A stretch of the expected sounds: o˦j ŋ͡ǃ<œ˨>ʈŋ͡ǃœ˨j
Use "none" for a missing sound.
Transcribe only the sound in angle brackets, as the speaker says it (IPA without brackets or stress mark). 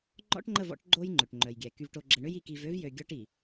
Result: ø˨